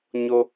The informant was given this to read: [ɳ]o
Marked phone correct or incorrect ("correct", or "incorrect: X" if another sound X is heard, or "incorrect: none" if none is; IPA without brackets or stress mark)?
incorrect: ɲ